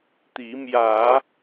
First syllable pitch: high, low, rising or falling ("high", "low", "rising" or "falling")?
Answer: rising